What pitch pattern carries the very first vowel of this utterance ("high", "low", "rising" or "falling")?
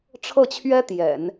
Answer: falling